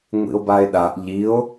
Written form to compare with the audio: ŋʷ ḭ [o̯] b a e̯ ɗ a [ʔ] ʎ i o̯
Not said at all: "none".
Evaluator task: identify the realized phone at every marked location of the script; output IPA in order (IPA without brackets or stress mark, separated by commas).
o̯, ʔ